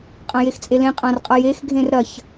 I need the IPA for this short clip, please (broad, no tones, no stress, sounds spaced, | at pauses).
qʼ ɐ̃ j e x t͡sʼ e l ẽ qʼ ã r qʼ ʌ j e x ɡʱ ẽ r ɾ ɐ ç